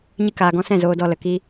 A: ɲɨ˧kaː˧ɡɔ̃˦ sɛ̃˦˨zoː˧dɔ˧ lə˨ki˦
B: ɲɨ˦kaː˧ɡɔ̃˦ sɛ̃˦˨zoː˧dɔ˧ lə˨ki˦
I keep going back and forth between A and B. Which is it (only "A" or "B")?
B